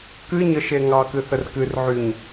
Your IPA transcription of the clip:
k ɨ ɲ ə ʃ e ŋ ɑ k ɨ θ ə r k ɨ r ʕ y ɲ

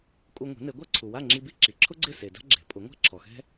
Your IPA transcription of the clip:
kʼ u˧ ŋʷ e̤˩˥ n e˩˥ ɡʷ a˥ ǀʰ u˩ w a˥˩ ŋ͡ǁ i˧ b i˥ ǁ i˩ ǁʰ ʊ˥ ɡ͡ǀ ɪ˥˩ s e˩ d a̤˥ ɡ͡ǁ e̤˩˥ pʼ ʊ˩˥ ŋʷ a̤˥ ǁʰ ɔ˩ x ɛ̤˥

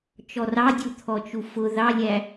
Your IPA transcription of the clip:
t͡ʃ ɔ r ɑ dʲ u t̪ʰ ɔ t͡ʃ u f ʊ ð ɑ lʲ æ

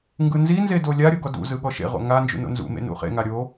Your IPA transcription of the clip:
ŋ ɡ ɯ n z i n z e d o lʲ a ɾʲ ɤ ɡ ɔ d ṵ z ɯ ɠ ɔ ʃ ḛ ʁ o̰ ŋ a n d͡ʒ ṵ n o̰ n z ṵ m ḛ n ṵ χ ḛ ŋ a ɾʲ o

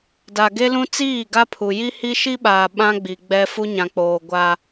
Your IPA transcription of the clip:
d a˨ ɡ e˦ l ũ˦ t͡s iː˦˨ ɡ a˦ pʰ u˨ j i˦ h i˦ ʃ i˦ ɓ aː˨ ɓ ã˦ ɡ͡b i˨ ɡ͡b ɛ˦ f u˦ ɲ ã˨ k͡p oː˨ ɡʷ a˦

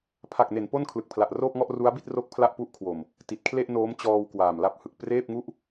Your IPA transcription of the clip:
pʰ a˨˩ k̚ n e˩˦ n p o˥˩ n kʰ l ɯ˨˩ k̚ pʰ l a˨˩ ʔ r oː˥˩ p̚ ŋ ɔ˥˩ ʔ r u˦˥ a̯ b i˥˩ t̚ r o˥˩ k̚ pʰ l a˥˩ ʔ p u˦˥ ʔ kʰ w o˨˩ m | t i˨˩ t̚ kʰ l e˥˩ ʔ n oː˦˥ m t͡ɕ ɔː˧ w k w aː˨˩ m l a˦˥ p̚ h ɯ˨˩ k̚ p r eː˥˩ p̚ ŋ u˥˩ ʔ

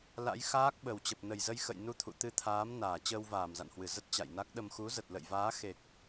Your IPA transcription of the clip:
l a̰˧˥ j x aː˦˥ k̚ ɓ ə˨˩ w t͡ɕ ə˨˩ p̚ n ə˧˩ j z ə˧ j x ə̰˧˨ j n u˧ t̪ʰ ṵ˧˨ t̪ ɨ˧ t̪ʰ aː˨˦ m n aː˧˩ t͡ɕ əː˧ w v aː˧˩ m z a̰˧˨ n h w ɨ˧˩ z ə˦˥ t̚ t͡ɕ a̰˧˨ j n a˦˥ k̚ ɗ ə˧ m x u˨˦ z ə˨˩ t̚ l ə̰˧˨ j v aː˨˦ x e˨˩ k̚

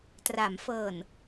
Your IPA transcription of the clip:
t r a˩˦ m f ɤː˨˩ n

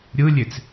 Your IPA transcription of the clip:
ɾʲ ɯ lʲ e t͡s

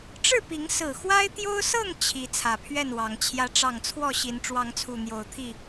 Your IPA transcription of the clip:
ʈ͡ʂ ɻ̩˥˨ p i˨˦ ŋ s ɹ̩˨˩ x w a˦ ɪ̯ t̪ j o˦ ʊ̯ s ɤ˥˨ ŋ t͡ɕʰ i˨˦ t͡sʰ ä˨˩ pʰ ɥ ɛ˥˨ n w ɑ˨˦ ŋ t͡ɕʰ j ä˦ ʈ͡ʂ ɑ˥˨ ŋ t͡sʰ w ɔ˥˨ ɕ i˨˦ n ʈ͡ʂ w ɑ˨˦ ŋ t͡sʰ u˨˩ n̪ j o˨˦ ʊ̯ t̪ʰ i˥˨

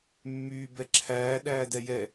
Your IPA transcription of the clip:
mː yː b ɛ ǁʰ æː ɗ æː d ɛ j ɛ

